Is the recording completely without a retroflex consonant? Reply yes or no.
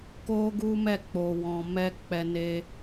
yes